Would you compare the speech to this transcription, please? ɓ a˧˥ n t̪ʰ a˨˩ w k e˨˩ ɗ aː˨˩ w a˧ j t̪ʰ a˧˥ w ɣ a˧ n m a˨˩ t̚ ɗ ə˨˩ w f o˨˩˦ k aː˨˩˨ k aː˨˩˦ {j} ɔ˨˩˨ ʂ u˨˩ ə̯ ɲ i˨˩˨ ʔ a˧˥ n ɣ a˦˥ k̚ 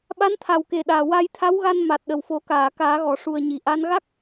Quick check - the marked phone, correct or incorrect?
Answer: incorrect